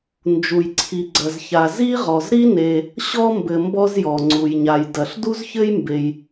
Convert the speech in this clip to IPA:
n d͡ʒ u˩ j ǀʰ i˩ ɡ͡ǀ ɐ˩ z ç a˩ z i˥ ʁ ɔ˩ z ɾ i˥ n e˩ | ɕ ɔ˥ m b ɘ˩ m b ɔ˥ z j ɔ˩ ŋ͡ǀ u˩ j ɲ a˩ j d ɐ˩ ɬ d u˥ z ç ɘ˥ j m b e˩ j

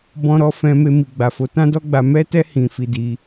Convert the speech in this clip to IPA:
b ɔ̃˦ ɾ ɔ˦ f ɛ̃˧ m e˧ m i˨ ɡ͡b a˨ f o˨˦ t ã˦ d ɔ˦ ɡ͡b a˧ m ɛ˦ t ɛ˦ h ĩ˧ f i˧ d i˧

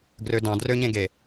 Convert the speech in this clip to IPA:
ɡ r ø d ɑ̃ d r ø ɲ ẽ ɡ e

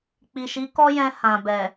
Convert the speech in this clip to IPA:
k͡p i˨ ʃ i˨˦ k ɔ˦ j ɛ̃˧ h ã˨ b ɛ˨

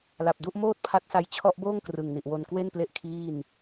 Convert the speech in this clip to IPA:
l a˨˩ p̚ d u˥˩ ʔ m oː˥˩ t̚ pʰ a˦˥ t̚ s a˧ j t͡ɕʰ ɔ˦˥ ʔ b oː˥˩ ŋ k r ɯ˨˩ ŋ n i˨˩ ʔ w o˧ n k w e˥˩ n p l e˦˥ ʔ kʰ iː˥˩ n

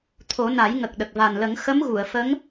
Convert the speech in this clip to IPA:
t̪ʰ o˨˩˦ n a˨˩˦ j ŋ ə˨˩ k̚ ɗ ə˨˩ k̚ v a˨˩ n l ə˨˩˦ ŋ x ə˧˥ m ɣ u˨˩˨ ə̯ f ə˧˥ ŋ

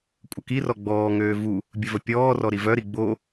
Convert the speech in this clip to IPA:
kʷʼ ə k i r ɔ ɡ͡b ɔː ŋ øː v u | bʲ ə v ə pʲ ɔː r ɔ ɾ i v œ ɾ i ɡ͡b o

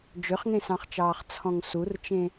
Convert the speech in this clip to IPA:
d͡ʒ ø χ ŋ ẽ s ɑ̃ χ t͡ʃ ɑː χ t͡sʰ ɔ̃ ŋ s u r t͡ʃ ẽ

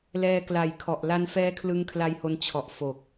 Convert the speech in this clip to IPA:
l ɛː˧ k l a˨˩ j kʰ ɔ˨˩ ʔ l a˧ n f ɛː˦˥ kʰ l ɯ˧ ŋ kʰ l a˧ j h o˧ n t͡ɕʰ ɔ˨˩ ʔ f o˨˩ k̚

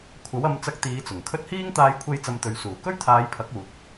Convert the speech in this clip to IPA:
kʷʰ ɐ˨˥ w ɐ˨˧ m t͡s ɐ˧ k̚ t̪ iː˨˧ t͡s ʊ˨˩ ŋ kʰ ɵ˥ t̚ h iː˥ ŋ t̪ aː˧ j kʷʰ e˧ j t͡s ɐ˧ m t̪ ɵ˨˧ ɥ s uː˨˩ k ɵ˥ ɥ t̪ʰ aː˨˧ j pʰ ɐ˨˥ k̚ uː˨ t̚

